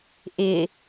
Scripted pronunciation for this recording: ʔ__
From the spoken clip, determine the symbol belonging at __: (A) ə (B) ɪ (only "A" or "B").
B